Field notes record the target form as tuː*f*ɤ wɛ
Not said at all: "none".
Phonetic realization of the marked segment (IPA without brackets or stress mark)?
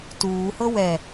h